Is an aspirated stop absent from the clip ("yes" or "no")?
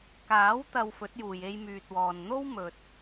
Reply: yes